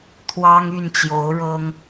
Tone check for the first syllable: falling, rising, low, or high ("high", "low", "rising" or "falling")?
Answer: high